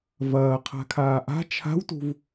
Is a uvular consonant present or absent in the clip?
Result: present